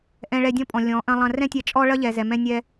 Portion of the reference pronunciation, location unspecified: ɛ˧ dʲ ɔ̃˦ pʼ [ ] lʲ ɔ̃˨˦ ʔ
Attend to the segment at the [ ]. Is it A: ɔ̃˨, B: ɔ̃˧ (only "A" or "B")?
A